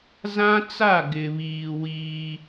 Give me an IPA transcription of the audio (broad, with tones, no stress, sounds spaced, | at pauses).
z ã˦ t͡s a˦˨ ɡ ɪ˨ β iː˨ w iː˦